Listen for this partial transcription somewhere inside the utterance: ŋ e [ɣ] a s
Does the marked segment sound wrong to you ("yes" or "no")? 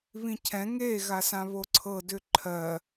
no